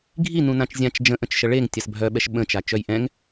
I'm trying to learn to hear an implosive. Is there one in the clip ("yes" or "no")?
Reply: yes